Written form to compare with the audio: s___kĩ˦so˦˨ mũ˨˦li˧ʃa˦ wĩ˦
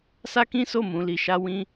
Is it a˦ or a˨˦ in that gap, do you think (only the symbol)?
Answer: a˦